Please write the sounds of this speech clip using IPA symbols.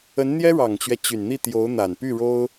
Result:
ə˧˥ n n̪ j ɛ˥ ɻ ɑ˨˩ ŋ t͡ɕ ɥ ɛ˦ t͡ɕ y˨˩ n n̪ i˥˩ t̪ j o˧˥ ʊ̯ n̪ a˨˩ n p y˥˩ ɻ o˥ ʊ̯

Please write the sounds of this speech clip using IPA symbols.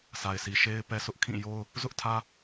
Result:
sʰ a˨ ɪ̯ sʰ i˨ ʃ e˦ ɪ̯ p ɛ˦ sʰ ʊ˦ ʔ kʰ ĩ˦˨ j o˦ ʊ̯ | z ʊ˦ ʔ tʰ ä˦

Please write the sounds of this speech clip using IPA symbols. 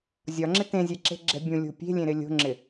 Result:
zʲ ɒ ŋ͡ǁ ɪ t ẽ zʲ ɛ ǁ e̤ ɡ͡ǁ ɛ̤ bʲ ũ lʲ o̤ pʲ e̤ lʲ ẽ ɾ ɪ lʲ o̤ ŋ͡ǁ ɪ

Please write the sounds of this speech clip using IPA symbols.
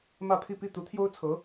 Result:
m ä˥˧ pʰ i˥˧ p i˥˩ t̪ u˧˥ t̪ʰ j o˥ ʊ̯ t͡sʰ ɤ˧˥

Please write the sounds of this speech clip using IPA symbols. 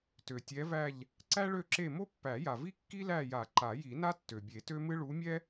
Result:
t ø˩ tʲ ɛ˨˦ v æ˦˨ ʎ | ǀ æ˥ ɭ ø˦˨ ǁ e˦˨ m o˥ pː æ˨˩˦ j a˩ v i˥ kː i˥ l æ˦˨ j a˨˩˦ ǃ a˨˩˦ j i˨˩˦ n a˥ tː ø˩ bʲ e˨˩˦ t ø˥ m ɨ˥ ɭ u˨˦ mʲ ɛ˥

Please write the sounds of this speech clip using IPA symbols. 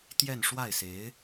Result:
t̪ j ɛ˥˧ n ʂ w a˥˩ ɪ̯ s e˧˥ ɪ̯

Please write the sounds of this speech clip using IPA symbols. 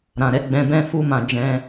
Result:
ɾ ã˨ ɾ ɛ˨˦ ɡ͡b ɛ̃˧ b ɛ̃˦ f u˧ m ã˨ d͡ʒ ɛ̃˧

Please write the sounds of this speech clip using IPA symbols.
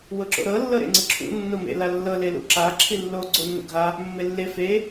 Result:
w ɤ ǁ o̰ ɾ ɤ lː ɤ ɾ ḛ ŋ͡ǀ ɯ ǁʰ ṵ nː o m ḛ l a lː ɤ l e l ṵ ǁ a ǁʰ i lː o ɡ͡ǀ o nː o̰ ɡʱ a | mː e lː e f e

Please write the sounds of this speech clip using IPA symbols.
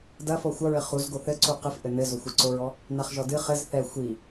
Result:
d ɐ f ɔ xʷ ɐ ɹ ɘ χ u z ɡ o θ ɘ ǀ u q ɨ f ʔ ɘ n ɘ z o xʷ ɨ ǀ o ɹ ɔ | n a χ ʒ ɔ d ɨ χ ɘ z θ ɛ xʷ i

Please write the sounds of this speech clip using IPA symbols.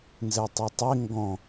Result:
n z ɛ tˤ ɐ tˤ e ŋ ɡ ɔ̃

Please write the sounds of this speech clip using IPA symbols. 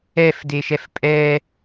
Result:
ɛ f d e ʃ ɛ f pʼ ɛ

